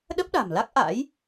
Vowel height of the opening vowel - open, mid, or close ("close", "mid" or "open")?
mid